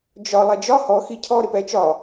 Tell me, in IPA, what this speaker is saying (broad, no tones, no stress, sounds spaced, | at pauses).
d͡ʒ ɒ lˠ ɛ d͡ʒ ɒ h ɔ x i cʰ ɔ ɾ ɪ p ɛ t͡ʃ ɒ